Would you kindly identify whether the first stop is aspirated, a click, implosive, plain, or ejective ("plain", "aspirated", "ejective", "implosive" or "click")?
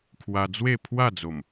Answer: aspirated